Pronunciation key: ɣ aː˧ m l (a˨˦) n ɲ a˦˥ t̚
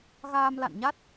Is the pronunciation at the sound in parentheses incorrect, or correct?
incorrect: a̰˧˨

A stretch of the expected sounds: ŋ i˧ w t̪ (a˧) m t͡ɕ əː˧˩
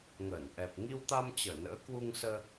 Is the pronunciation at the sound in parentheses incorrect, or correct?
correct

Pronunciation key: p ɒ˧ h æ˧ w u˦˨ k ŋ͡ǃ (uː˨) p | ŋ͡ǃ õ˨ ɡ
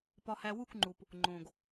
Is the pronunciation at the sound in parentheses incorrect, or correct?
incorrect: u˨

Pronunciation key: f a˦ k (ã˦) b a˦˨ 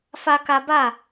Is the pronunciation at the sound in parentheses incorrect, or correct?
incorrect: a˦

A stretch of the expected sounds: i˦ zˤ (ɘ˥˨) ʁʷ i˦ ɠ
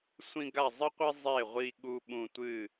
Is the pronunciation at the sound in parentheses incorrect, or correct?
incorrect: e˥˨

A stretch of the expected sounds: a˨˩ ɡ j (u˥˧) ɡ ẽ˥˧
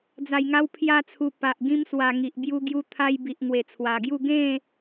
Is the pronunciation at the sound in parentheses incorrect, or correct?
correct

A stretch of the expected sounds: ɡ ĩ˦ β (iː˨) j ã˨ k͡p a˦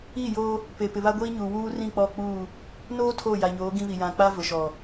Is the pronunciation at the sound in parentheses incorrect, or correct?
incorrect: i˨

